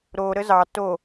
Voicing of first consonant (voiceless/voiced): voiced